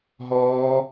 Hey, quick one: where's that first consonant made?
throat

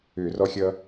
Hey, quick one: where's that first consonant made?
tongue tip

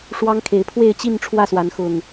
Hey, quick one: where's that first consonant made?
retroflex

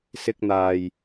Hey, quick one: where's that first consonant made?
tongue tip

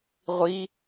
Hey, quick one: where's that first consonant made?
uvula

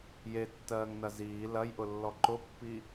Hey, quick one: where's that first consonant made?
palate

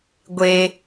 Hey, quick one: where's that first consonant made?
velum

